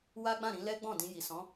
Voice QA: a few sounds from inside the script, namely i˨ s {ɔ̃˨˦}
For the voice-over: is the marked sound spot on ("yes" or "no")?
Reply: yes